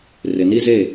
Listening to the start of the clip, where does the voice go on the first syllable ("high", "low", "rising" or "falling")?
low